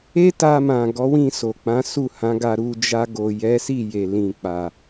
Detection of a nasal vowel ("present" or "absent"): present